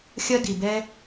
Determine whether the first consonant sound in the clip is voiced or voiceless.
voiceless